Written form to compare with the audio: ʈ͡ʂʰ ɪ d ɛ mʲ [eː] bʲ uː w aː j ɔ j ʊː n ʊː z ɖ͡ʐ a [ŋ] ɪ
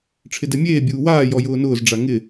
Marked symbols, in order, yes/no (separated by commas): yes, yes